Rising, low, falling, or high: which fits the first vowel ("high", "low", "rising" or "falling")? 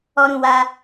high